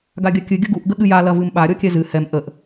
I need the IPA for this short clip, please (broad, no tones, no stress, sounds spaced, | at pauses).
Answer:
ɡ a ɡʲ ɐ kʲ ɨ ɡʲ ə ɡ u ʔ ɡ ə ɠ ɨ j a l ɐ v ɨ m ɓ a ɾʲ ɔ kʲ ɛ z ɨ h ɛ m ʔ ə ʔ